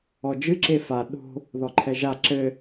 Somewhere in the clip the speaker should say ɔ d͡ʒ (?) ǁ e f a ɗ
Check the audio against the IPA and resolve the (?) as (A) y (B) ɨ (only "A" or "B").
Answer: B